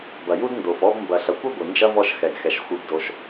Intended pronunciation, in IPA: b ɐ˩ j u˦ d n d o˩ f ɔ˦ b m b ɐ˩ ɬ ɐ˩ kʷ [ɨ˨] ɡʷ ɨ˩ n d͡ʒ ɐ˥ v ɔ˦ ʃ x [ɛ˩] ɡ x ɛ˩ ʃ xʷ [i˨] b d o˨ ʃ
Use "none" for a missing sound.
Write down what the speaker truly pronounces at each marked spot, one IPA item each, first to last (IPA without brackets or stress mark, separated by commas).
ɨ˦, ɛ˩, i˨